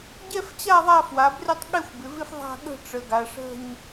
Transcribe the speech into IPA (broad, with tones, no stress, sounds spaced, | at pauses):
ɟ ɛ˥˧ f t͡ɕ a˥˧ ðˤ a˥˧ f w a˩˧ b r ɪ˥˧ tˤ ɠ ɛ˥˧ xʷ b ɪ˩˧ v ɪ˥˧ f ðˤ a̤˥˧ ɠ ə̤˥˧ ʈ͡ʂ ə˩˧ ɡ a˩˧ ʂ ə̤˥˧ ɲ